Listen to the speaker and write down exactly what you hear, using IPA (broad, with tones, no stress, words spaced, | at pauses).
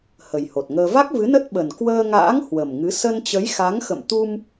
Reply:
hə˨˩jho˨˩t̚ŋəː˧ va˦˥k̚vɨ˨˦nə˦˥t̚ ɓə˨˩n kwəː˧ŋa̰ː˧˥ŋ hwə˨˩mŋɨ˨˦ sə˧nt͡ɕə˨˦jxa˨˦ŋxə̰˧˨m t̪u˧m